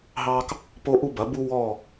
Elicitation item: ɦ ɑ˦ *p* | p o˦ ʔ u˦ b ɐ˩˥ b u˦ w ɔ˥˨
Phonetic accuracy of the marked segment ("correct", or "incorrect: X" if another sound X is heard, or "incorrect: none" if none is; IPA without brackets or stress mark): incorrect: k